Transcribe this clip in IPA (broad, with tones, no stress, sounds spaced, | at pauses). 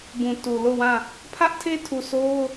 b ũ˨ t u˨ l o˦˨ w ã˦˨ | pʰ ä˦ ʔ tʰ e˦ tʰ u˨ sʰ o˦ ʊ̯